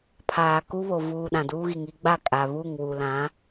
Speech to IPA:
pʰaː˨ku˦βo˨ vuː˨ ɗã˨duː˦ɣi˨ŋ i˦ ɡ͡ba˦˨ kʼa˨ βu˦˨ŋwu˨lã˨˦

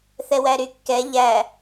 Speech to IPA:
θɛwæɾykːɛ ʎæ

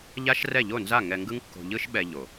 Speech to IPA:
ʎa˦ʃ rɛ˦˨ʎo˦˨nza˦˨ ŋɛ˧ŋɡɯ˦ŋkːo̤˧ ʎɯ˦ʃɓɛ˧ ʎo˨

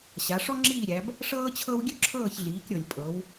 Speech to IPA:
ɕa˩˧ʂɔ˥ ŋ͡ǁiː˦˨ɾʲæ˩˧b | ʂɤː˥t͡ɕʰɤ˥w ɡʲø˥ǁʰɤː˦˨çɮiː˩˧kɾʲɤ˩lʲ pʼɤ˩˧w

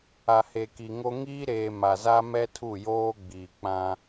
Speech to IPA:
a˨he˨ki˨ŋo˦ ŋiː˦ɾeː˨ ma˨za˦ mɛ˦tʰu˦˨joː˦ ɡ͡biː˨k͡pã˦

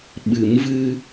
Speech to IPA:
ɓɨ˨˩˦mvɨ˧

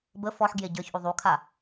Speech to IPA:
bə fɔħ ɡjeɟə˞çʔu ðˤukʰa

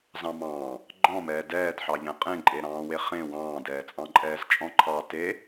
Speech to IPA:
zɑ̃mɑ̃ː | ɡ͡ǃɔ̃mɛː dɛːdħɑʎɛ̃ qʼẽǃʼeɾɑ̃ːwe χẽ wɑ̃ːdɛːt͡sʼɑ̃ǃʼɛːz t͡ʃʼɔ̃ǃʰɑ te

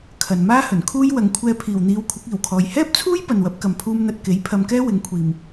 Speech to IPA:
kʰɐ˨nmaː˥hɵ˨˩nkʰuː˥j wɐ˨˩ŋkʷʰɛː˧pʰiː˨˩wn̪iː˨˧w kʷʰɪ˨˥k̚iː˨˩wkʰɔː˨j hɛː˥p̚t͡sʰuː˥j pɐ˨nwɐ˨˥p̚kɐ˨mpʰuː˧m n̪ɐ˨t̚ke˨˥j pʰɐ˧mkɛː˥wɪ˨˥ŋ kʷʰiː˨m

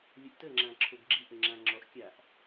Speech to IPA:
lʲəʔtəŋ͡ǁã ǁʰoɡɡ͡ǁiʔə ŋ͡ǁãŋ͡ǁɔʔkʲaʔ

